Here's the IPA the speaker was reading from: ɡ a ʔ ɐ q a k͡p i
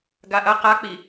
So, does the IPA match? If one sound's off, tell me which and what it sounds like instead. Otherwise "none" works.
none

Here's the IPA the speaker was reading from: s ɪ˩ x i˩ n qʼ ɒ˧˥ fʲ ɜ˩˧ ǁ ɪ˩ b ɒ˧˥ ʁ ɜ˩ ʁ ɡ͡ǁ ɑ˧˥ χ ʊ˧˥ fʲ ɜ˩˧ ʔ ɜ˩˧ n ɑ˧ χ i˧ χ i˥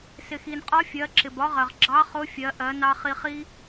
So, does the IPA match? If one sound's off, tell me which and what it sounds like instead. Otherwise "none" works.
none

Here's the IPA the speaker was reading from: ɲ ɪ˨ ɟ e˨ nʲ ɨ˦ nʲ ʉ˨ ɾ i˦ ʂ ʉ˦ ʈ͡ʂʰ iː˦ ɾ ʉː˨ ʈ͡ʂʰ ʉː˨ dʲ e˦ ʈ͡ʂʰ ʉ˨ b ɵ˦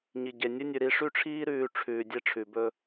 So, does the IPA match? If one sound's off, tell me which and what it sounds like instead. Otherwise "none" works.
ɪ˨ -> i˨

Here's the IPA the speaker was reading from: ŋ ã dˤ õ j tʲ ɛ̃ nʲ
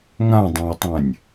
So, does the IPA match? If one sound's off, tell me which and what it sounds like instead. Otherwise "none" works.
tʲ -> tˤ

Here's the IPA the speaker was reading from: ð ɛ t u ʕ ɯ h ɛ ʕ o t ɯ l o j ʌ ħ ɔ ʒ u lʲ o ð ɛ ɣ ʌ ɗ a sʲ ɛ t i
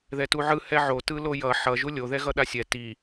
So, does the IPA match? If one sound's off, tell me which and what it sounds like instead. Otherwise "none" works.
ɔ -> ʌ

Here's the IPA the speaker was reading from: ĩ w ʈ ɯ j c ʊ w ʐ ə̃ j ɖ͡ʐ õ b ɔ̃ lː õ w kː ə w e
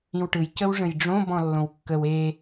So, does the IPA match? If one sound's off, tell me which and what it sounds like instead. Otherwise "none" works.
ʊ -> ə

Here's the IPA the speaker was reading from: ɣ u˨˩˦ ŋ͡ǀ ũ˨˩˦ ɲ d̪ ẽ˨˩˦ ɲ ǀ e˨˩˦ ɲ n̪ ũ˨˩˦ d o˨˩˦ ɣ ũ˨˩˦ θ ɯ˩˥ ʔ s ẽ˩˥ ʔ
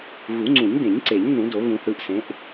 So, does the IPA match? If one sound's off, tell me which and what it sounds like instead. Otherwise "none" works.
none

